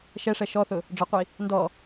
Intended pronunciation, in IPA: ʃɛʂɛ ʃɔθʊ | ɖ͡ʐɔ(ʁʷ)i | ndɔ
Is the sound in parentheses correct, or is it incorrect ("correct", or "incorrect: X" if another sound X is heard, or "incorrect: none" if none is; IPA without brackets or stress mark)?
incorrect: qʷ